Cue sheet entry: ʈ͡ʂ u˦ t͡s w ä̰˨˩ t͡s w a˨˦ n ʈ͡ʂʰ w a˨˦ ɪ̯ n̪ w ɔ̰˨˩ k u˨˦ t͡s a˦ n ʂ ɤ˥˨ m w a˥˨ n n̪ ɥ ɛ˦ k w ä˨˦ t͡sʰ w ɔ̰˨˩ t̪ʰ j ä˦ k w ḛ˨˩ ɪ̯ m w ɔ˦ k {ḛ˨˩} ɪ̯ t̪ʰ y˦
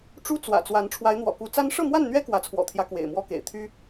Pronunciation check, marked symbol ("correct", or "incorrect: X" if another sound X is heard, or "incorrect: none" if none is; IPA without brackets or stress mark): correct